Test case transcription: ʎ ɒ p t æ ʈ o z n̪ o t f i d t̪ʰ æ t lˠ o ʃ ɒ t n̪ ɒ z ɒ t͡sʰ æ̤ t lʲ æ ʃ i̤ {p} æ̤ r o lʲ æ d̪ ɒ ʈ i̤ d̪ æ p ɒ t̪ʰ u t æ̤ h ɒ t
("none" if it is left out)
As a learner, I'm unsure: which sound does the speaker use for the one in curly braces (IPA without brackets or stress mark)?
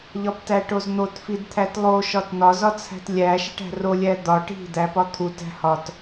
ʈ